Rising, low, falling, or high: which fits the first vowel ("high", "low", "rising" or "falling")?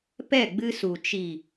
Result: falling